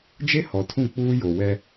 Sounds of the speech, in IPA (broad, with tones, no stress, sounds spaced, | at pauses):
d͡ʒ e˦ h ɔ˨ tʰ ũ˦˨ k͡p uː˦ j o˨ w ɛ˦